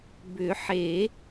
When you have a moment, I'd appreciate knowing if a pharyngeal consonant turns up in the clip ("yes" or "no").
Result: yes